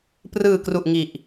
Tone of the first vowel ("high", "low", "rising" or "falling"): low